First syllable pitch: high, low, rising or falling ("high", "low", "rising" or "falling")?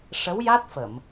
rising